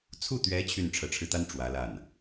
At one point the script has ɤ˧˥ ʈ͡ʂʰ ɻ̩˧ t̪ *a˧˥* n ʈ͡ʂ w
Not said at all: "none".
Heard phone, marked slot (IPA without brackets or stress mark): a˥